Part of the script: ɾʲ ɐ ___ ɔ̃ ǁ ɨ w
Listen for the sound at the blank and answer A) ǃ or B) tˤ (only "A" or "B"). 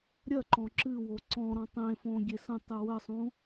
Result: A